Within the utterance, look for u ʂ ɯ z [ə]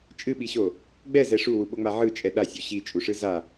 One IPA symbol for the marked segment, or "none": a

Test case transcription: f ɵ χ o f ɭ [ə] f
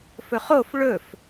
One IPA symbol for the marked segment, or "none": ɵ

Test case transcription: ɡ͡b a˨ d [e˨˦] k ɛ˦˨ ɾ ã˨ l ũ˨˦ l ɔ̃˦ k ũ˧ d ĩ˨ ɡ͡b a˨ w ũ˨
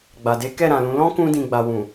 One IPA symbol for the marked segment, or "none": e˨˦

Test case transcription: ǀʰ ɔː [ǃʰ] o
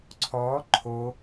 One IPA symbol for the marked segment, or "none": ǃʰ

